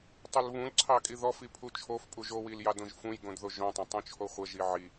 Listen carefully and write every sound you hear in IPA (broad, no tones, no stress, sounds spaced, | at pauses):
tˤ o l β ũ l ǀʰ ɑ kʼ i ð ɔ f i pʰ u t͡ʃʰ o f pʼ u ʒ o w i l j ɑ d õ ʒ f ũ j ɡ õ d ð o ʒ õ tˤ õ tˤ ũ t͡ʃʰ o χʷ ə ʒ i ʕ i